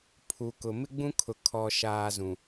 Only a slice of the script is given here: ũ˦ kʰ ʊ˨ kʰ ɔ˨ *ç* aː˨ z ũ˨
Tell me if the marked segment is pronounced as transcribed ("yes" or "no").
no